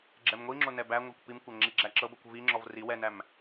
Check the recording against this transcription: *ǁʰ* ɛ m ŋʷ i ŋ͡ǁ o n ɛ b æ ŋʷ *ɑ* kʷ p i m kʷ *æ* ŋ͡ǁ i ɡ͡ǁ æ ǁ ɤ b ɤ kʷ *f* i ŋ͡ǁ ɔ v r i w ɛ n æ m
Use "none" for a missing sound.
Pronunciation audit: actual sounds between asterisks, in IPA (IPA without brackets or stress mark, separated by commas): ɡ͡ǁ, ɑ, æ, v